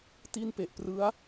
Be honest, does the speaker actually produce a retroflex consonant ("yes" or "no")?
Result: no